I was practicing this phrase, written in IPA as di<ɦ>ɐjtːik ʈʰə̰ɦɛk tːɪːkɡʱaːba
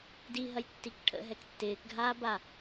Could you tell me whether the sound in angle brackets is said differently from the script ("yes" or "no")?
no